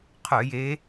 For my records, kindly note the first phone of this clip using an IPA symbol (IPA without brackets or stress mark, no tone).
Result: qʰ